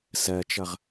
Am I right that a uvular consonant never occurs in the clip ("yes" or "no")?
no